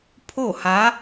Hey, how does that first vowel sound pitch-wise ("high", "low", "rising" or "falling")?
falling